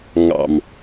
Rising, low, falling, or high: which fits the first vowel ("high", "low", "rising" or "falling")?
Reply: low